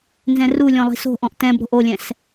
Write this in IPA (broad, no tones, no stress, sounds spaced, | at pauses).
n z ɛ̃ r u lʲ ɔ̃ lˠ i̤ s o̤ ʔ ɔ̃ ʔ t ɛ̃ b ɾ o̤ ʔ o lʲ ɛ̃ s